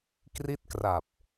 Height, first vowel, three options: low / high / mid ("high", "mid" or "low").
high